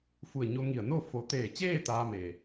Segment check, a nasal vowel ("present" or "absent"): absent